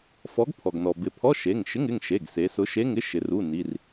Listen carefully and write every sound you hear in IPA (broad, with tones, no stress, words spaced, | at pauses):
fɔ˨˥ɡpʰɔ˩ɡnɔ˩ bɪ˩˧pʰɔ˧˥˧ ʃe˩˧˩ŋʃɪ˧˥˧ŋɪ˩˧˩ŋ ʃe˩˧˩ɡ se˩˧sʊ˨˥ʃe˧˥˧ŋɪ˧˥˧ ʃɪ˩˧r u˩˧˩ ni˩˧˩r